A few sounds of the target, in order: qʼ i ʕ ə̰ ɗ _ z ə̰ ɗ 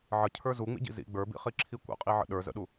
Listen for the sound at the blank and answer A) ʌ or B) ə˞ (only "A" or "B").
B